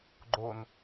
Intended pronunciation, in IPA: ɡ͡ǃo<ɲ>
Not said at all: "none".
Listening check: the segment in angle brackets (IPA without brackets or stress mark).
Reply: n